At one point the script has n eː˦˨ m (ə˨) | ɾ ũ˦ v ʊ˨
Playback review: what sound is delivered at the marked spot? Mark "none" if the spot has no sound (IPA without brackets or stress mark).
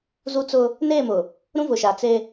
ʊ˨